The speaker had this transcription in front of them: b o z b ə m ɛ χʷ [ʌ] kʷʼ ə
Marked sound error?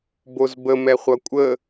no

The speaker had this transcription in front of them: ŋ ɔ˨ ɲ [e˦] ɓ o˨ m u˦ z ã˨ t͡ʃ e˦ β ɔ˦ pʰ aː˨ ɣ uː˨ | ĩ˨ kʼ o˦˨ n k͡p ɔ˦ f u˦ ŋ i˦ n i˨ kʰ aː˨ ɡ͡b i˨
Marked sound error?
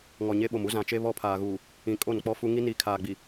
no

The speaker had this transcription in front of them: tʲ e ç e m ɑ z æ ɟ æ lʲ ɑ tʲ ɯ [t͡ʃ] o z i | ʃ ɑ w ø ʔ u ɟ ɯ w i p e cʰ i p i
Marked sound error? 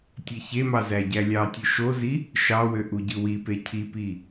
yes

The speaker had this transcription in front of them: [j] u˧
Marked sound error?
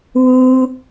yes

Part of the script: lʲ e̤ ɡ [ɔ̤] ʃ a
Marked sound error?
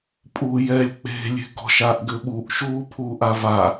no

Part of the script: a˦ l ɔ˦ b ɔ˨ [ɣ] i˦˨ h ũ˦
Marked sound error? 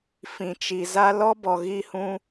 no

